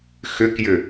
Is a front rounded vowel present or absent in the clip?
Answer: present